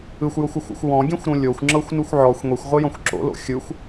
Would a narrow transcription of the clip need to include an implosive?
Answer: no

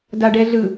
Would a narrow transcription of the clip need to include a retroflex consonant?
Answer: yes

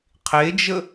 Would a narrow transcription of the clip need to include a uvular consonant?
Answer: yes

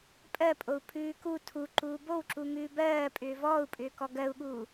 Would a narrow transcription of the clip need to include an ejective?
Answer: yes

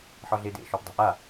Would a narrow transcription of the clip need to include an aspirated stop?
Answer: no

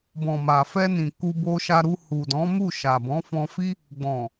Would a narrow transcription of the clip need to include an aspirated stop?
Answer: no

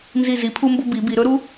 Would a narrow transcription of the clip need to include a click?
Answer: no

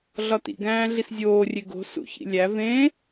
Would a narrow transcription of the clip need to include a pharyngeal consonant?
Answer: no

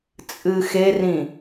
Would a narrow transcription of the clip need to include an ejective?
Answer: yes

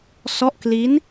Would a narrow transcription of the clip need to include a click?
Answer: no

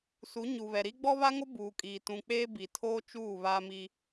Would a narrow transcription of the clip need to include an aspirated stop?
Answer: yes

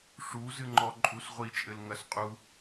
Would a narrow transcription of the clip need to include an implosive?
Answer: no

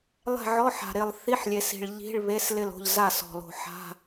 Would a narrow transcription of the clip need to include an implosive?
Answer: no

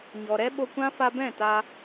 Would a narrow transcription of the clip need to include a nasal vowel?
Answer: yes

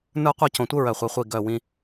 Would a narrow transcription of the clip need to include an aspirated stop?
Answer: no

